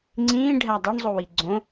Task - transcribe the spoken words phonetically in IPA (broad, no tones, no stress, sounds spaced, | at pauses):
ŋ͡ǀ ĩː ɖʱ æ dˤ o ɳ zˤ o w i ɡ͡ǀ õ